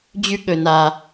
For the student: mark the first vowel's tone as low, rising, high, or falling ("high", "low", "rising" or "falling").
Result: high